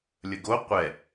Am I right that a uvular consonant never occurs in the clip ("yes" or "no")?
no